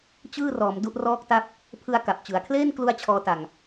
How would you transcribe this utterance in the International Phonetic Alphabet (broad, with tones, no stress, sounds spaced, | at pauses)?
t͡ɕ ɯː˥˩ r ɔː˩˦ m d u˦˥ ʔ r ɔː˥˩ k̚ t a˥˩ p̚ | pʰ ɯ˧ a̯ k a˨˩ p̚ t͡ɕ ɯ˩˦ a̯ kʰ l eː˥˩ n k l u˥˩ a̯ t͡ɕʰ ɔː˦˥ t a˧ ŋ